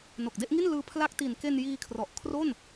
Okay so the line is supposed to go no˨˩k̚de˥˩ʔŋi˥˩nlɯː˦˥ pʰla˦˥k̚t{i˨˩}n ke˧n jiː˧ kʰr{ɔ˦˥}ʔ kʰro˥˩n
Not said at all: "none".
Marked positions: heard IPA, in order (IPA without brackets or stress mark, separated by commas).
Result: i˨˩, ɔ˨˩